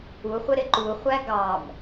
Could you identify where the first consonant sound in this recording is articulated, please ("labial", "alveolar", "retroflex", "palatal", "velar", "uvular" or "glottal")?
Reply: uvular